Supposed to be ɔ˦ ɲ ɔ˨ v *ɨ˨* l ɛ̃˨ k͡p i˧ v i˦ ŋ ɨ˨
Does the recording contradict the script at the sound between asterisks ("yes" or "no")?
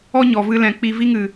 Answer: yes